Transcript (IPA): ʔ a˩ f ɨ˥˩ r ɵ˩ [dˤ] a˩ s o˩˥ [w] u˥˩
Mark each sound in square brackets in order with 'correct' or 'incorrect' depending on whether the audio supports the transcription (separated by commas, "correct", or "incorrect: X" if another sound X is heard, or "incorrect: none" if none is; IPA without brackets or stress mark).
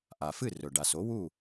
incorrect: ɖ, correct